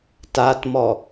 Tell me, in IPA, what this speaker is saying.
t a t m ɔ

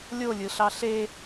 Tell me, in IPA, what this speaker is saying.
lʲ o lʲ ɯ ɬ ɑ ɬ e

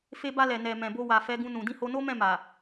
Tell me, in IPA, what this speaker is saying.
f e˧ b a˧ l ɛ˨ n ɛ˨ m ɛ̃˨ b o˧ w a˨ f ɛ˨˦ ɡ ũ˧ n ũ˨ d ĩ˧ h o˧ n o˦ m ɛ̃˦˨ m a˨

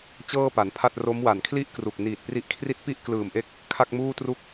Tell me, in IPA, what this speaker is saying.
t͡ɕ ɤː˥˩ p a˩˦ n pʰ a˥˩ t̚ r o˦˥ m w a˨˩ n kʰ l i˥˩ ʔ k r u˨˩ k̚ n iː˨˩ t̚ p r i˦˥ ʔ kʰ r i˥˩ t̚ p i˥˩ ʔ k l ɯː˨˩ m ʔ e˦˥ k̚ | kʰ a˥˩ k̚ m uː˥˩ t r u˥˩ k̚

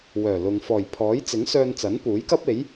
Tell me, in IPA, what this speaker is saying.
w œː˨˩ l ʊ˨ ŋ f ɔː˨˩ j pʰ ɔː˨˥ j t͡s ɪ˨˥ ŋ s œː˧ n t͡s ɐ˨˥ n p uː˨˥ j k ɐ˥ p̚ e˨˥ j

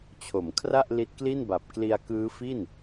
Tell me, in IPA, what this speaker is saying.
t͡ɕʰ o˩˦ m kʰ r a˥˩ ʔ l i˦˥ t̚ k l i˥˩ n b a˨˩ p̚ k l i˧ a̯ k ɯː˦˥ f i˥˩ n

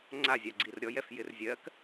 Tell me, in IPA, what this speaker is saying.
ŋ͡ǀ a zʲ a ɡ͡ǀ i r ɾʲ ɔ j ɛ f j ɪ r zʲ ɜ k

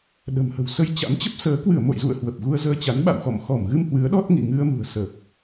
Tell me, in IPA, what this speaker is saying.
ɗ ə̤˨˩ m h ə̤˨˩ w s ə˧ j t͡ɕ a̰˧˥ m t͡ɕ ə˦˥ p̚ s əː˨˦ k w ɨ˧˩ ə̯ m o̰˧˨ j z ṵ˧˨ ə̯ h w ə˨˩ p̚ ɣ u˧ ə̯ z əː˧ t͡ɕ a˨˦ n ɓ a̰˧˨ w x ɔ̰˧˨ m x ɔ˧˩ m ɣ ɨ˧ m h w ɨ˨˦ ə̯ ɗ ɔ˦˥ t̚ ŋ ḭ˧˨ ŋ ɨ˧ ə̯ m ṳ˨˩ ə̯ s ə˨˩ p̚

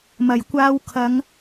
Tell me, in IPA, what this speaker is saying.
m ɐ˨˩ j kʷ aː˧ w kʰ ɐ˨˧ ŋ

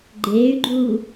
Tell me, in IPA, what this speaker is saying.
ɡ͡ǃ eː y̯ ɡ͡ǃ uː

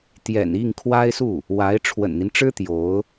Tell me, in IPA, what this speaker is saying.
t̪ j ɛ̰˨˩ n i˥˩ ŋ kʰ w a˥ ɪ̯ s u˥˩ | w a˧˥ ɪ̯ ʈ͡ʂʰ w ə̰˨˩ n n̪ i˦ n ʈ͡ʂ ɻ̩˥ t̪ j o˧˥ ʊ̯

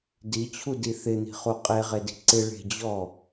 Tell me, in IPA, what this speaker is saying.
d i t͡ɕʰ u d i θ ɪ n̪ i̤ χ u qʼ e ʁ e d i̤ ǀ ɪ ɭ e̤ d͡ʑ ɔ

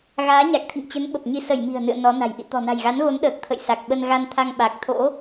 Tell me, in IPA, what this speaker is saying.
ɣ aː˨˦ ɲ a˨˩ k̚ t̪ʰ ḭ˧˨ ŋ t͡ɕ ə˨˦ n ɓ ə˨˩ p̚ ɲ i˧ s ə˧˩ j m i̤˨˩ ə̯ n ɨ̰˧˨ ə̯ n ɔ˨˦ n a̤˨˩ j ʔ ḭ˧˨ t̪ ɔ̤˨˩ n a̤˨˩ j ɣ a˨˦ n ɣ o˨˦ n ɗ əː˨˩ k̚ t̪ʰ ə̰˧˨ j s a˨˩ k̚ ɓ ə˧ n ɣ a˧ n t̪ʰ a˧ ŋ ɓ a˨˩ k̚ t̪ʰ o̰˧˥

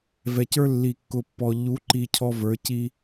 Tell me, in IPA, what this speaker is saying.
v ɛ˨ c ə˞˦ lː i˨ kː ʊ˨ pː ɔ˨ ʎ u˨˦ ǃ i˨ cʰ ɔ˦ v ə˞˨˦ c i˦

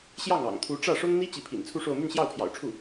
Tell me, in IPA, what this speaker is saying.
ɕ j ɑ˥˩ ŋ ɑ̰˨˩ ŋ t̪ʰ u˧˥ ʈ͡ʂ ä˥˩ ʂ ʊ˥ ŋ n̪ i˥ t͡ɕ i˧˥ pʰ ḭ˨˩ n t͡sʰ u˥˧ ʂ o˥˧ ʊ̯ m y˥˧ n ɕ j ɑ˥˩ ʊ̯ pʰ j ɑ̰˨˩ ʊ̯ ʈ͡ʂʰ u˥˩

